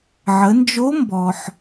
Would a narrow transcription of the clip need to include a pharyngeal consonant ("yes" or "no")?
yes